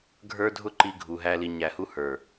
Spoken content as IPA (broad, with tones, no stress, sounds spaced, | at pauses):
ɡʱ ə˞˦ dʱ ʊ˦ ǃ i˦ ɡʱ u˧ ɦ æ˦ l i˧ ɲ æ˨ h u˧ h ə˞˨